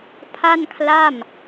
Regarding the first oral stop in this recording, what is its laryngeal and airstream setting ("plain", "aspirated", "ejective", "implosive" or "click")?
aspirated